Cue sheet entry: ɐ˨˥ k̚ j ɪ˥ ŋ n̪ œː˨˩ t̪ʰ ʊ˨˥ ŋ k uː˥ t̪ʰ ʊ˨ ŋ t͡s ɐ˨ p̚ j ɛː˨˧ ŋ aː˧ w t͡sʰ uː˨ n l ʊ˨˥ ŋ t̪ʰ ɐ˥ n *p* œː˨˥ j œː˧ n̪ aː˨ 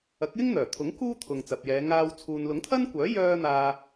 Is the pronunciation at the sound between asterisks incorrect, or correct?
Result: incorrect